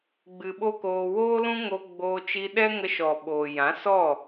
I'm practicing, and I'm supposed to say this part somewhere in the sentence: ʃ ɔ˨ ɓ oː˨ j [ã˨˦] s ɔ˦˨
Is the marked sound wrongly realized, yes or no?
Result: no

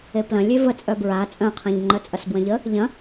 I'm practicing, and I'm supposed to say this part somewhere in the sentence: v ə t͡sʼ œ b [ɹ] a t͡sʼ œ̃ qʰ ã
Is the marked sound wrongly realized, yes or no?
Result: no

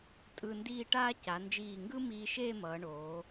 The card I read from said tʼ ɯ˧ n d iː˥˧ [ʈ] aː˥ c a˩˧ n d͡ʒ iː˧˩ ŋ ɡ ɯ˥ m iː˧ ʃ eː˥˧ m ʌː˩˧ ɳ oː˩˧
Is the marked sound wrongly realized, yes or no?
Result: no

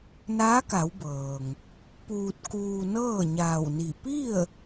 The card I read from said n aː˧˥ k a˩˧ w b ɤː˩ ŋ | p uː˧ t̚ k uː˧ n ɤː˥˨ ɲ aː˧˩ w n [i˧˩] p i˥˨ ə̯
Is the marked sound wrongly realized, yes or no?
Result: no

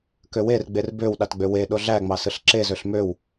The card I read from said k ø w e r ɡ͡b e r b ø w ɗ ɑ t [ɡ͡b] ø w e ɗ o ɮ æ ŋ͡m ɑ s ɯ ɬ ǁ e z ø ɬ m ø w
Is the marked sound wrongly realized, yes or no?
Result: no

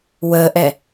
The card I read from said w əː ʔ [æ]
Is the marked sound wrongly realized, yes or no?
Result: yes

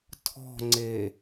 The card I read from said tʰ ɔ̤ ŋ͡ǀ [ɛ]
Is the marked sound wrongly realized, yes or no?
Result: yes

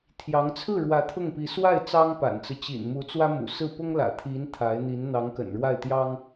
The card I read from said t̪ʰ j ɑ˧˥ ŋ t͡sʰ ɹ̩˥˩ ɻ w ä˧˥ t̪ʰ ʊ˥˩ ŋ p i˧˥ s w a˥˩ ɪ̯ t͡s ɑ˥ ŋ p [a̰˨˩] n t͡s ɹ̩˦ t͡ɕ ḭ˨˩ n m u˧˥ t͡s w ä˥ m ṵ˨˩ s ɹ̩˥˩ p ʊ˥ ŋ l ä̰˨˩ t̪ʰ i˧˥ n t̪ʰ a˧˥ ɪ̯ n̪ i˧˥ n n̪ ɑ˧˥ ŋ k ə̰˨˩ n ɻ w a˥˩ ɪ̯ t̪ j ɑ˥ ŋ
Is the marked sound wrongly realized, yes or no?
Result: no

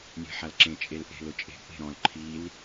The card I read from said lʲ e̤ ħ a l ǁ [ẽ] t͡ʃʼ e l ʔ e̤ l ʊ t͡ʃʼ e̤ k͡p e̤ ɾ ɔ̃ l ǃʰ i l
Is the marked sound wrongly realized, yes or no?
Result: no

